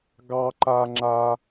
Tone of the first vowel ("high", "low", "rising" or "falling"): high